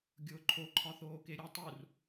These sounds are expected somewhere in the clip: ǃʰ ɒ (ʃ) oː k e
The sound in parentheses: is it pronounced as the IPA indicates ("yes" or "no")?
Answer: no